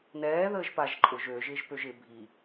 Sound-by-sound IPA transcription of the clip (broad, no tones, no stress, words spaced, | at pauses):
nɛː ðəːʒpaʒǃʼʊʒ ø ʒɪːʒpøʒɪ bʱi